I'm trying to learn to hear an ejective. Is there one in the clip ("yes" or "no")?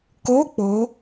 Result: no